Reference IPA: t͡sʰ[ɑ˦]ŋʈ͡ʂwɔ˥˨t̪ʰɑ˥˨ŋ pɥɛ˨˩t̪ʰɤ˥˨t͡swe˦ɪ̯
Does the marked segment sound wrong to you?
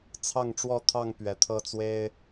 yes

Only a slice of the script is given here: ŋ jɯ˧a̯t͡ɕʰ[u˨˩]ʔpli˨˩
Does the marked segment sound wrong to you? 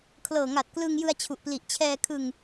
no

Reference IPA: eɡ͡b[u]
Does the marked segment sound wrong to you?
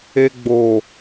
yes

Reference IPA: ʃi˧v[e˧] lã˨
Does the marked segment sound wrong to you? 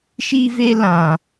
no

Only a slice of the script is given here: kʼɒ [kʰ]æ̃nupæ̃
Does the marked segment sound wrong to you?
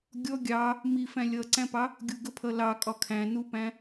no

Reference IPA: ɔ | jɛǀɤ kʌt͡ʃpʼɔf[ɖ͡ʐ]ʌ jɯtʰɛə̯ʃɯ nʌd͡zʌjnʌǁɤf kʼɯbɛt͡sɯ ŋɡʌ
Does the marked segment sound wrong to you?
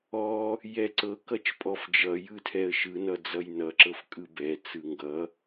yes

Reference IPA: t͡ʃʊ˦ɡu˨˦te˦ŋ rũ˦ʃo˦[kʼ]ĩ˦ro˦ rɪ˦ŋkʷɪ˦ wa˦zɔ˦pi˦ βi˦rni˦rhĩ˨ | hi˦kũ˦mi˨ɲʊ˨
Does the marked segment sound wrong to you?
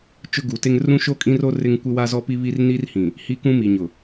no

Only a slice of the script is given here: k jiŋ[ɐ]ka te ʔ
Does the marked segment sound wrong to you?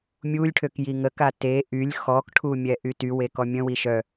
yes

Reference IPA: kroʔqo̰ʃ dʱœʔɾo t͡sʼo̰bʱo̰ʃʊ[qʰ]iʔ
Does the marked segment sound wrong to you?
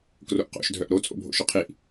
no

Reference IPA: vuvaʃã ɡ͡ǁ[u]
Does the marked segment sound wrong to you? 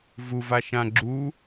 no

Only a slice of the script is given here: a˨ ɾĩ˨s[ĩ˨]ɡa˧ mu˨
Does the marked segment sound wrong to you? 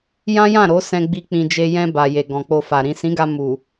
yes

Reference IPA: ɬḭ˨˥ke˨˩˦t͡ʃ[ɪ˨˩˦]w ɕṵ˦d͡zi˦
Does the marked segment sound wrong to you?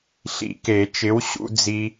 yes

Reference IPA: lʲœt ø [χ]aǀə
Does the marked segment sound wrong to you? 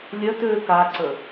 yes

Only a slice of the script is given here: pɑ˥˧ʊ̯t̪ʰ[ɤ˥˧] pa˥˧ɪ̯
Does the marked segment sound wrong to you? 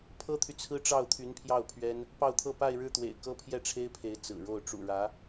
no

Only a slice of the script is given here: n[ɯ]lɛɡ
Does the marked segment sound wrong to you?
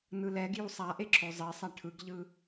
no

